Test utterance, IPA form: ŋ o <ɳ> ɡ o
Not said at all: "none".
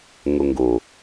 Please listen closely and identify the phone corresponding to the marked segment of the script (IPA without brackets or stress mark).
ŋ